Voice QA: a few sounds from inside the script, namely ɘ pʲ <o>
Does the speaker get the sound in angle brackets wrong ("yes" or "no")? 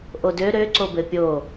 no